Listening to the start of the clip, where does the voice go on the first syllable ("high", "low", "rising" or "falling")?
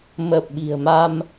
low